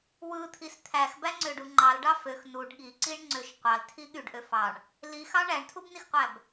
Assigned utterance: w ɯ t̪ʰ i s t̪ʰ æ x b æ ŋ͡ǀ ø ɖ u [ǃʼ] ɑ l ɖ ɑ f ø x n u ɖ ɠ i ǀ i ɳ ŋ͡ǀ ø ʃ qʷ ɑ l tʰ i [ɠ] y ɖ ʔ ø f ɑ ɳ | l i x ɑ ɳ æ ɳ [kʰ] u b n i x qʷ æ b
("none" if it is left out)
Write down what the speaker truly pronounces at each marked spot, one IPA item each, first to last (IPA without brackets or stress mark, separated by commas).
ŋ͡ǃ, ɠ, tʰ